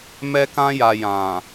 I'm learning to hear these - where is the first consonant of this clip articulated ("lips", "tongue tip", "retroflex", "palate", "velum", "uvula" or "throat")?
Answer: lips